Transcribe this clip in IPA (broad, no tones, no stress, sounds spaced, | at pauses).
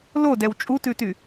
l o d ɛ w t͡ʃʼ u t ʉ t y